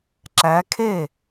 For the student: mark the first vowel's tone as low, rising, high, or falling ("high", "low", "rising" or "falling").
rising